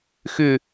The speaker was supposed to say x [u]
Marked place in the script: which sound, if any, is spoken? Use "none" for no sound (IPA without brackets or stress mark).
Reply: ʏ